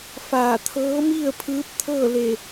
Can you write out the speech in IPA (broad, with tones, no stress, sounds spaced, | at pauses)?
f aː˧˩ t̪ʰ ɤː˧˥ m i˥˨ ə̯ pʰ ɯː˧˥ p̚ t̪ʰ ɤː˥˨ l e˧˩